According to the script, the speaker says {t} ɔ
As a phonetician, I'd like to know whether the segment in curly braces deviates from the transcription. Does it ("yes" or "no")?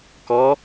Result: yes